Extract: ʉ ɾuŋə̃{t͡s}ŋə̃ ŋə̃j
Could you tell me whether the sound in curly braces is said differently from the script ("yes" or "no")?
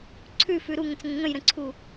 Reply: no